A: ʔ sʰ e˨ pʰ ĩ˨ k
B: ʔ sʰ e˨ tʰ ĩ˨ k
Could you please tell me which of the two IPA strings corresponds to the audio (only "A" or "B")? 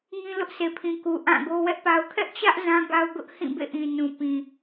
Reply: A